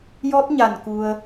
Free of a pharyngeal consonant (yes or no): yes